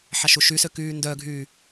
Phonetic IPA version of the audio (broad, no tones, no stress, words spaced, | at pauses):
ħaʃuʃysø kyːndœɡʱyː